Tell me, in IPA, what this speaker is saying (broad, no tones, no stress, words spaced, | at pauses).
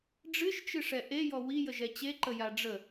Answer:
ɖ͡ʐɨʃt͡ʃɨʂɛ ʔejɔ wijəʒɛ t͡ɕeǃəja ɖ͡ʐə